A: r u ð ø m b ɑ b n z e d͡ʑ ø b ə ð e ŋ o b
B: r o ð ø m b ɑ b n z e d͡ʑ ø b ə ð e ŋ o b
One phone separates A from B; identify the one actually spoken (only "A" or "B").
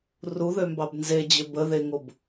A